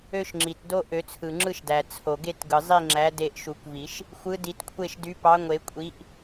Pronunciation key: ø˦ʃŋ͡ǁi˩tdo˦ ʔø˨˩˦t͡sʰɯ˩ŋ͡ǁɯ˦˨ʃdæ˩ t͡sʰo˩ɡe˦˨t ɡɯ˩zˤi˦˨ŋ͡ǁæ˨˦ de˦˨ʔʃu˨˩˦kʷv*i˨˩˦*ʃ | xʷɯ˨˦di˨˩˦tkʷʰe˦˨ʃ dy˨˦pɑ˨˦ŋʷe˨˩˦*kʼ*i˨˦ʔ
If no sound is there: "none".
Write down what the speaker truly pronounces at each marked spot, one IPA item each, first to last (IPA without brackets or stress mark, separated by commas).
i˨˩˦, kʷʼ